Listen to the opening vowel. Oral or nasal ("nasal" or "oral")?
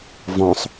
nasal